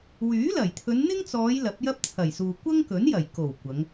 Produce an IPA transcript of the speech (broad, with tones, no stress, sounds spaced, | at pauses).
w yː˨˥ l ɐ˨˩ j t̪ʰ ɵ˨˧ n n̪ ɪ˥ ŋ t͡s ɔː˨˧ j l ɐ˨˥ p̚ j ɐ˥ p̚ t͡sʰ ɐ˨˩ j s uː˨ kʷ ɐ˥ ŋ k ɵ˨˥ n j ɐ˨˩ j k o˨˩ w kʷ ɐ˨˧ ŋ